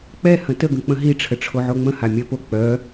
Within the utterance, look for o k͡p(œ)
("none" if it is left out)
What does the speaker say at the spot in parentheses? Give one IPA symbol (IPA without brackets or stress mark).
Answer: œ